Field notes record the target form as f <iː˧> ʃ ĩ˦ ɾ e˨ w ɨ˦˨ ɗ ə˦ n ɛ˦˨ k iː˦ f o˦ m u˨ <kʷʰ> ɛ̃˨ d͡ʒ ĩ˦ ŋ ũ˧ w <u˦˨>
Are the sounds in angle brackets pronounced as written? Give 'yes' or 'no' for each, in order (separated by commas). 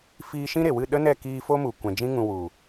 yes, no, no